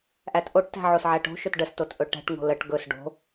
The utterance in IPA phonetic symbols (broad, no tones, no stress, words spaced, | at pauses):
ʔætʔoʈtæ̤ ʕosʕæʈo̤ʃɵt ɖəstot ʔɵʈæ̤ʈŋo̤ ləʈ ɡɵs ɖo̤